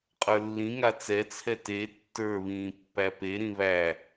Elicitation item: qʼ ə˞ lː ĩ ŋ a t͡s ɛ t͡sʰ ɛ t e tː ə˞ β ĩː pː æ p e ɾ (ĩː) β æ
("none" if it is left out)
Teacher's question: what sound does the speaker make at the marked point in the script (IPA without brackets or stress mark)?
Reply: ĩ